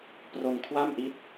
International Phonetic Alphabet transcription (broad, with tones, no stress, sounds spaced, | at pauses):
p r o˧ n kʰ w a˥˩ m ʔ i˦˥ t̚